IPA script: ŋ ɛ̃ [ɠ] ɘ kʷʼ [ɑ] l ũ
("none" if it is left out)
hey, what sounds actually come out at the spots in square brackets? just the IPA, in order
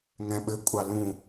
ɓ, ɑ

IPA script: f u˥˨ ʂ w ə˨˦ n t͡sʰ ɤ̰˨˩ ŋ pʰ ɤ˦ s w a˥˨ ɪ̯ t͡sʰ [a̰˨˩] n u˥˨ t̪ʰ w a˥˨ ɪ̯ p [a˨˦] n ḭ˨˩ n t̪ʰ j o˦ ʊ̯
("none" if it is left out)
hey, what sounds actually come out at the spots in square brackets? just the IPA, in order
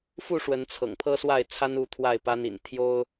a˦, a˦

